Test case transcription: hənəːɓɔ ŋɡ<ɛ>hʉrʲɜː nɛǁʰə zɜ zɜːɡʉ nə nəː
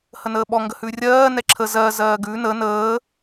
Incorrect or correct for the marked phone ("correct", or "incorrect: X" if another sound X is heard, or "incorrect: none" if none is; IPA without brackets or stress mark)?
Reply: incorrect: ə